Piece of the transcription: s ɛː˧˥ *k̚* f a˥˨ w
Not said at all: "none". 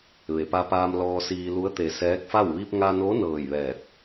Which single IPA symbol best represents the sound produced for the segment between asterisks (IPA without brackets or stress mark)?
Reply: k̚